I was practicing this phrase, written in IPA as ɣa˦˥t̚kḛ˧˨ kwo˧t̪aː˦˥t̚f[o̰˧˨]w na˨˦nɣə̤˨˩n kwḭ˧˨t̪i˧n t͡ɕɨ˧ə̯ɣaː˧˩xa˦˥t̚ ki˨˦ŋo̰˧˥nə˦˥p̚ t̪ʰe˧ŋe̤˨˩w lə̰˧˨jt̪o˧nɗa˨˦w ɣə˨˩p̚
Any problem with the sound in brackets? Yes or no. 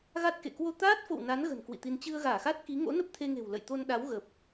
no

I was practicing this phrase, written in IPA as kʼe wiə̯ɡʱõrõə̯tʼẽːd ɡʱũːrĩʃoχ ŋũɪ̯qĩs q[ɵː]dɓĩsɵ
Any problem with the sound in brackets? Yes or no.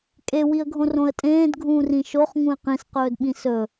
no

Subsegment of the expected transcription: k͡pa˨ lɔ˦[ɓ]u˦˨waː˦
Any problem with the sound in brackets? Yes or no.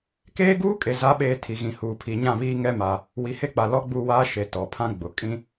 yes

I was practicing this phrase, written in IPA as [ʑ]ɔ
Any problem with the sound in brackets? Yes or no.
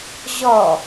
no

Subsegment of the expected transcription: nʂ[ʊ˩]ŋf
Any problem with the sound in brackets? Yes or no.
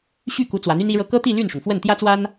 no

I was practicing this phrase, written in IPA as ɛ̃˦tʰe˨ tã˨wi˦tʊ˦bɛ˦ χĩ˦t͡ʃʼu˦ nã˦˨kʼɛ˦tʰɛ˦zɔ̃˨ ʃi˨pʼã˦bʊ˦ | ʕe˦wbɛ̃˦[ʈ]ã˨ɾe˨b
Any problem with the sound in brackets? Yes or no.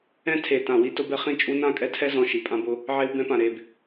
yes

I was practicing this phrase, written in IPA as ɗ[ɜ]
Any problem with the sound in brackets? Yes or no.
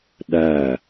yes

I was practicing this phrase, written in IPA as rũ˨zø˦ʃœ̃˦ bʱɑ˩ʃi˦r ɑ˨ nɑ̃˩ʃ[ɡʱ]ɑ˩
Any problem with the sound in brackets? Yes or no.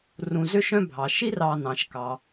yes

